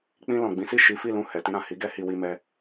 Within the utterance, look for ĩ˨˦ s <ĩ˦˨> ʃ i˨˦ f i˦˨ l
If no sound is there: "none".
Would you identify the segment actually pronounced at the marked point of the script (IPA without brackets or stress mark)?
i˦˨